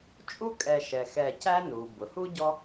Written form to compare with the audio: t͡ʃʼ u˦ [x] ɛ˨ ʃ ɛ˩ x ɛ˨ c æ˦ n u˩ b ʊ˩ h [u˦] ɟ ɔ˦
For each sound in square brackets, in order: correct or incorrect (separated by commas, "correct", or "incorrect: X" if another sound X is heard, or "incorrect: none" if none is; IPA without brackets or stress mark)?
incorrect: kʼ, incorrect: u˥